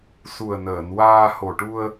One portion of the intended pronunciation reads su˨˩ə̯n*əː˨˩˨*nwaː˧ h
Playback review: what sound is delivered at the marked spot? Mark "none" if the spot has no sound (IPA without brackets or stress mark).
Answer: əː˨˩˨